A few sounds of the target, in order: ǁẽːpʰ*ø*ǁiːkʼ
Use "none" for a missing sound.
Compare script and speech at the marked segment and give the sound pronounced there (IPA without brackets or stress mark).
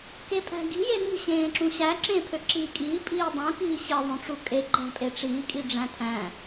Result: ø